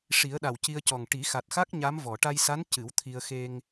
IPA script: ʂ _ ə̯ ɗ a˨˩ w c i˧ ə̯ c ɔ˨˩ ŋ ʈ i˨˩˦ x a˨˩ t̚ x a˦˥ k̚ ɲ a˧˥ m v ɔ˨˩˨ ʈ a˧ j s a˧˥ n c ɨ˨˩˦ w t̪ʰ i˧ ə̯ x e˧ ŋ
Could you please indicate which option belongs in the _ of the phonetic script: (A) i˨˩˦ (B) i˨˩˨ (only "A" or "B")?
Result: A